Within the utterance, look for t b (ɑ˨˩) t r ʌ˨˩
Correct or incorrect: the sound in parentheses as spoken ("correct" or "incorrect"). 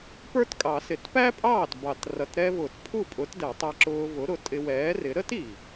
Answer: correct